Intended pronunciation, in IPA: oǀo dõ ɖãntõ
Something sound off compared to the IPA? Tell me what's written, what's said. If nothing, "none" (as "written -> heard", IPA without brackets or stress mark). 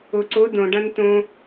none